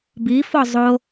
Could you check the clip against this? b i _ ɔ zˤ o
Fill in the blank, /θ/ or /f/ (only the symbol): f